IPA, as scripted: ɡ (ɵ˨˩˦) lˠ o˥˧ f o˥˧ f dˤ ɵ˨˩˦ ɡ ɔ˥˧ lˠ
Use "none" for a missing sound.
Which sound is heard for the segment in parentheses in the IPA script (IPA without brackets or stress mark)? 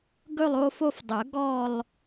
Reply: ɵ˥˧